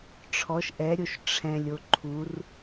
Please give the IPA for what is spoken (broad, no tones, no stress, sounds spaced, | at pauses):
ʈ͡ʂʰ ɔ ʃ ʔ ɛ ɾʲ o ʃ ʈ͡ʂʰ ɛ̃ lʲ o ǃʰ u r